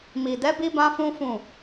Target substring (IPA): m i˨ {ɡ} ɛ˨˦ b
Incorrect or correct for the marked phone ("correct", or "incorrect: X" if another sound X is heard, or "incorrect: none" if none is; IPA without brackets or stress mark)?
incorrect: d